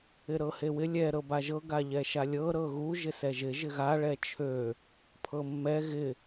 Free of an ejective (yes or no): yes